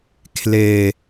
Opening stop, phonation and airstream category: aspirated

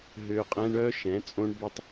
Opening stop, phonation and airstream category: ejective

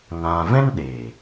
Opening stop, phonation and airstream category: implosive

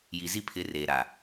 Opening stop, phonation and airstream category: aspirated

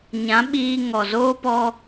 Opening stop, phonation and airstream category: implosive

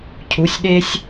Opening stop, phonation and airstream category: aspirated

